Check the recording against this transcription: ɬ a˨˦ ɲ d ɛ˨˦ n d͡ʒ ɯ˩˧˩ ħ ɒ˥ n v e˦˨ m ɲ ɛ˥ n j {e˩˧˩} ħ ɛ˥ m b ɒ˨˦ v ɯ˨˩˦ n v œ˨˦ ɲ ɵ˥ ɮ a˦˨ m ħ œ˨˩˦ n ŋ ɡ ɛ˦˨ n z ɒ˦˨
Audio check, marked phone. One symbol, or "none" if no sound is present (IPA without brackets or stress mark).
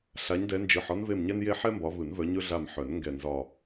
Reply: e˥